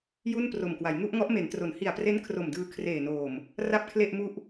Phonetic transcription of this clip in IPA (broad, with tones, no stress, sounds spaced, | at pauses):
j u˥˩ n p r o˨˩ m k w a˩˦ j ŋ u˥˩ ʔ ŋ ɔ˦˥ ʔ m e˩˦ n t r o˩˦ n h i˨˩ a̯ p r e˦˥ n kʰ r o˨˩ m d ɯː˧ kʰ r eː˨˩ n oː˨˩ m | r a˥˩ p̚ kʰ l e˥˩ ʔ m u˥˩ ʔ